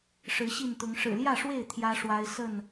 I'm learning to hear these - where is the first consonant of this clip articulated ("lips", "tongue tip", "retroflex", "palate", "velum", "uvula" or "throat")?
retroflex